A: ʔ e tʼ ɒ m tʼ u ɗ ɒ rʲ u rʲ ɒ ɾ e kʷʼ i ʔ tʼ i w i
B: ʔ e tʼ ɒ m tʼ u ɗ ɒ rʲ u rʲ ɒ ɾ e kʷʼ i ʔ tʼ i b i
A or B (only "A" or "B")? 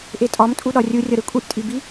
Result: B